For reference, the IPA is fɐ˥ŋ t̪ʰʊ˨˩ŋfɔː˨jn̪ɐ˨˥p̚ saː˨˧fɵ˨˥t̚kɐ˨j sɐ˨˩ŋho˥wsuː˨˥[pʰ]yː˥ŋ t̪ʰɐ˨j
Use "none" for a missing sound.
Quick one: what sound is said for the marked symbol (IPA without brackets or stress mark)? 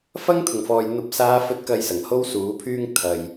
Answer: pʰ